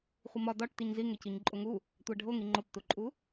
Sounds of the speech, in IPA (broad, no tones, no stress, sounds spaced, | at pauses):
χʷ i m ɒ d ɒ ʈ t i ɲ z i ŋ e c i ɲ ǃʼ o ŋ u | tʷ æ ɖʱ o ŋ i ŋ͡ǃ o p t u ǃʼ u